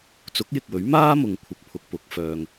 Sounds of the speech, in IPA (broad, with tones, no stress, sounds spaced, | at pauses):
t͡s ʊ˨˥ k̚ j ɪ˨ k̚ w ɵ˨˥ ɥ m aː˥ m ʊ˧ ŋ kʷʰ ɪ˧ k̚ pʰ ʊ˧ k̚ p ʊ˨˥ k̚ f œː˧ ŋ